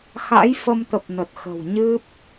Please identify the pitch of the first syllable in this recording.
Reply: rising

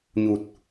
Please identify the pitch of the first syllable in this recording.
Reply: low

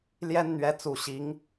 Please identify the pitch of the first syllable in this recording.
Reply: high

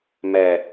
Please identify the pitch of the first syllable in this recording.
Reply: low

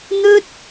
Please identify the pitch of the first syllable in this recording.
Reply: high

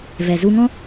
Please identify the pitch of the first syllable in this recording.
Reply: low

